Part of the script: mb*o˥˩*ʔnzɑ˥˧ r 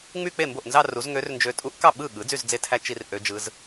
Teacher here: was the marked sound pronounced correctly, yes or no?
yes